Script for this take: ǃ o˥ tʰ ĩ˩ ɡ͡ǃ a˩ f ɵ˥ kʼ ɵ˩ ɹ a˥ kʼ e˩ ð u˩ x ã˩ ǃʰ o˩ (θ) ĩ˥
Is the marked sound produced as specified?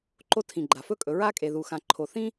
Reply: yes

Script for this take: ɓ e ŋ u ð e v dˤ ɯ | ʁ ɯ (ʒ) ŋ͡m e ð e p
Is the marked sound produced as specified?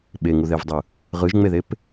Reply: yes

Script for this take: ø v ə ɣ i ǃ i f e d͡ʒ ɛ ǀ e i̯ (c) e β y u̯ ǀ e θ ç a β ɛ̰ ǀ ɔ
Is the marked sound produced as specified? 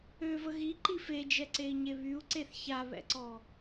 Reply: no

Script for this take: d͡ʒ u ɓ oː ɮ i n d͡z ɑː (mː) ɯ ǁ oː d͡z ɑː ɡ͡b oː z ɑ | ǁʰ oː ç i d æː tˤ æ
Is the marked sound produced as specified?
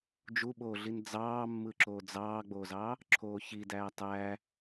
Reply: yes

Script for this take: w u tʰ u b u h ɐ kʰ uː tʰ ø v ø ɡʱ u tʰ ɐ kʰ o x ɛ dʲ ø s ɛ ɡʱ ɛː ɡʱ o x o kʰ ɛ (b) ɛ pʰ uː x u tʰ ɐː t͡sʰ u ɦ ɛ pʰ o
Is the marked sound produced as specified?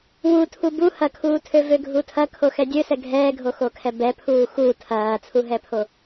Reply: yes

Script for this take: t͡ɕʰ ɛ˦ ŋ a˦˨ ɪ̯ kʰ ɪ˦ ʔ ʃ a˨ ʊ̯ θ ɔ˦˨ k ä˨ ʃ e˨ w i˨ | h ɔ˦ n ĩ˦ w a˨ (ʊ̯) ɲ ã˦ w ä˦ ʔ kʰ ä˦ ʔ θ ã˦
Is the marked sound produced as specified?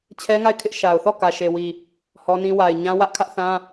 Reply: no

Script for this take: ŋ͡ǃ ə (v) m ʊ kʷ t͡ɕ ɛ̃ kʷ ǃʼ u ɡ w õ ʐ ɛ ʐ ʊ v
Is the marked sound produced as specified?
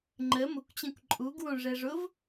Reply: no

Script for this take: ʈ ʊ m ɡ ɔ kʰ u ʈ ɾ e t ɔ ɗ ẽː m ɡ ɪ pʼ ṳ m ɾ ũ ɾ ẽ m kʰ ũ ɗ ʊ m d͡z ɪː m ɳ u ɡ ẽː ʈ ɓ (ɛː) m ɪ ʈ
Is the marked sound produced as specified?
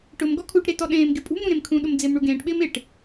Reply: no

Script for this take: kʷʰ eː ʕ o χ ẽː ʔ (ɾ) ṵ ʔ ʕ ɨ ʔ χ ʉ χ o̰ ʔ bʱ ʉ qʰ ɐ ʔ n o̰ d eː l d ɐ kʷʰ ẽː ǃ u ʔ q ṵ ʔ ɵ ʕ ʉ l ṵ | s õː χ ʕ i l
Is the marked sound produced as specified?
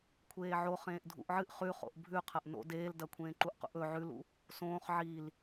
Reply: no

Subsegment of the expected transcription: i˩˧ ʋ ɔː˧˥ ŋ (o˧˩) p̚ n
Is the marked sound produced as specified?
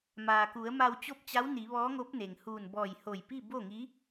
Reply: no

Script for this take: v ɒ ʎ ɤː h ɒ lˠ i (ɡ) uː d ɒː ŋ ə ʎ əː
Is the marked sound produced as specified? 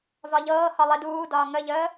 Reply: no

